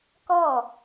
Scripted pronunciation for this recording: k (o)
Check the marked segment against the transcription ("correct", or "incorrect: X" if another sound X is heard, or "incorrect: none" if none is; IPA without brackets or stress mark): incorrect: ɔ